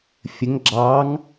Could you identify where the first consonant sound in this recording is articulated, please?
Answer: labial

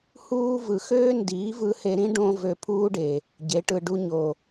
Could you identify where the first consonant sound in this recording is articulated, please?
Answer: glottal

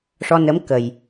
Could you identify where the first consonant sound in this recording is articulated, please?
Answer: retroflex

